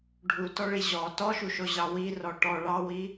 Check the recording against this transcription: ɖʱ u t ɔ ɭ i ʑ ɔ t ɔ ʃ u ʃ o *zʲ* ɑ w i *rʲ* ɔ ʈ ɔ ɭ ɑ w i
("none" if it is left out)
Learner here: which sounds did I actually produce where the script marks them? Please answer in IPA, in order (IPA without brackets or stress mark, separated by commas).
ʑ, r